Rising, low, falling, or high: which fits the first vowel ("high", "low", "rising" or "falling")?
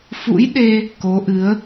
rising